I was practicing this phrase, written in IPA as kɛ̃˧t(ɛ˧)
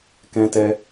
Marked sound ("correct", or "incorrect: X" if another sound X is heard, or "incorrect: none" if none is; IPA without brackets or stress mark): correct